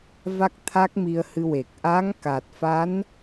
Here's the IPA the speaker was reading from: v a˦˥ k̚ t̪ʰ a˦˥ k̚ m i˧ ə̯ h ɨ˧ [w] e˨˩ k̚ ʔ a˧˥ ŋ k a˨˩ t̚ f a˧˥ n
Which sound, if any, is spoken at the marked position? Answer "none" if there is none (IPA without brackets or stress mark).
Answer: w